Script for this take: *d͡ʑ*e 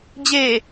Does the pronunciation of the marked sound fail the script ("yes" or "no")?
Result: no